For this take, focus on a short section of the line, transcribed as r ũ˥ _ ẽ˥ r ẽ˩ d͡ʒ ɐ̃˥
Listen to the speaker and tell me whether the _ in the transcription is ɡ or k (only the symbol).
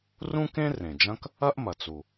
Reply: k